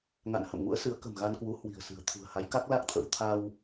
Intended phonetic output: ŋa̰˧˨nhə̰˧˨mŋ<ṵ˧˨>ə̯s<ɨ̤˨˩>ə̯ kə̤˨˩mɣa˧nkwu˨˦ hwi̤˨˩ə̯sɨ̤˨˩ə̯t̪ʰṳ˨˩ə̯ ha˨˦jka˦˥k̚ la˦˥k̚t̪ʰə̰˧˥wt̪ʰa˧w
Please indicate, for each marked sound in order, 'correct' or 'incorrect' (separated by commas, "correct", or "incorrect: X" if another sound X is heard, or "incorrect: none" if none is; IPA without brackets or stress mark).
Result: incorrect: ṵ˧˥, incorrect: ɨ˨˦